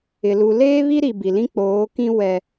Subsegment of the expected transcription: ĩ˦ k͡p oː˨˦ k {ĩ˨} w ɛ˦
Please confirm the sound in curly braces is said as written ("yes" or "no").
no